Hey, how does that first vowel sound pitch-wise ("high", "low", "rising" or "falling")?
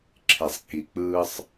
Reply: low